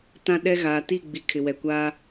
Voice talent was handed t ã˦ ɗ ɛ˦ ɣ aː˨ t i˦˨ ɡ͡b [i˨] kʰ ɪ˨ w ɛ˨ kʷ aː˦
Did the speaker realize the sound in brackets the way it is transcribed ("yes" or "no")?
yes